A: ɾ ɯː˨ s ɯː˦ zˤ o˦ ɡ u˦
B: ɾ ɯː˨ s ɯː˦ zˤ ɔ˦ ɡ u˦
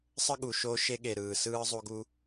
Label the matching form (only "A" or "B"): A